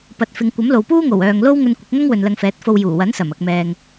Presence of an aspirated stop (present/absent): absent